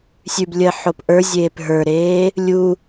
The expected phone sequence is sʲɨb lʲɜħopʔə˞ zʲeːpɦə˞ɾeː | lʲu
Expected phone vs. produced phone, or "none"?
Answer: ɨ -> ʉ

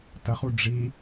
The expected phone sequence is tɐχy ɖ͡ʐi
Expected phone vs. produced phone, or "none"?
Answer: y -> u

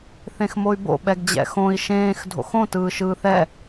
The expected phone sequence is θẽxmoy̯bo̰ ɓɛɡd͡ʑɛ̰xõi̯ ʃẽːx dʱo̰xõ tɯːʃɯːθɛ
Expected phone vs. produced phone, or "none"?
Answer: none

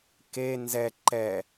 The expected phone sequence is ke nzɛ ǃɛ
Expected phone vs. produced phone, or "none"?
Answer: none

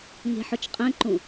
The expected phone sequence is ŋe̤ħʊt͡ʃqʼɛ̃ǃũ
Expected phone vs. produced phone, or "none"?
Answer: none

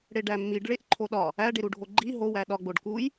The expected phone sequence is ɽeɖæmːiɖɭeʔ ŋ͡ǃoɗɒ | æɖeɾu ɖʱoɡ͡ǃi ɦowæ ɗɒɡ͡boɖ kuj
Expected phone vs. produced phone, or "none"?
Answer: ŋ͡ǃ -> ǃʰ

